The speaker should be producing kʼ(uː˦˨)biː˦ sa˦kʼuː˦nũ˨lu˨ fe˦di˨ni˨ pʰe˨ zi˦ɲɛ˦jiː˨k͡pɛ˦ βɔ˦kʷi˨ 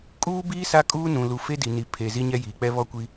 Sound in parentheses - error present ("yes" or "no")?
yes